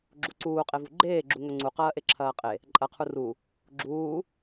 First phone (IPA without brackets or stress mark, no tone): ɡ͡ǁ